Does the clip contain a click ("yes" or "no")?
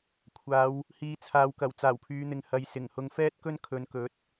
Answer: no